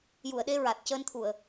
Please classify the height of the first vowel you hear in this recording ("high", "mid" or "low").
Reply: high